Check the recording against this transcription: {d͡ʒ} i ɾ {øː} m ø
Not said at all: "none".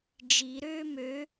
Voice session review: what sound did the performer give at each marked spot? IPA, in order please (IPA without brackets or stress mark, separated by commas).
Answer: d͡ʒ, øː